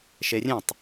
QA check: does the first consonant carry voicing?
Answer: no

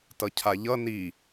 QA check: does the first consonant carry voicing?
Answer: no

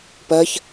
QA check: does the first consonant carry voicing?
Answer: no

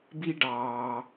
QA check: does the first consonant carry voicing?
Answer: yes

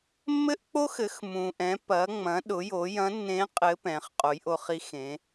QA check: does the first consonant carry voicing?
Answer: yes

